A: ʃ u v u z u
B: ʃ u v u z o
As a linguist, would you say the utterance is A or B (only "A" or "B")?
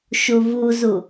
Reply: A